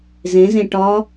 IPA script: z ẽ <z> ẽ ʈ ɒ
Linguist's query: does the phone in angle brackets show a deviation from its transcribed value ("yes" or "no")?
no